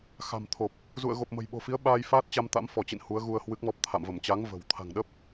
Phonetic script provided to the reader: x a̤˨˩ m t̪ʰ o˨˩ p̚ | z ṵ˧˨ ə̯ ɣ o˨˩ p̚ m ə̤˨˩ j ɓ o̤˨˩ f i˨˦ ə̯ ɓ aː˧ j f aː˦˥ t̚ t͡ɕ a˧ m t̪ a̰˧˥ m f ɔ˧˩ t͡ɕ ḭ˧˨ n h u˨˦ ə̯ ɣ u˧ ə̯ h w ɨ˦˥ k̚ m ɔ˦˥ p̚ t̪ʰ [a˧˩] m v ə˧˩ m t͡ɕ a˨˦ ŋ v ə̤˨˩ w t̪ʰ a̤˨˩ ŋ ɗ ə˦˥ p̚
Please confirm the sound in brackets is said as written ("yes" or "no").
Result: no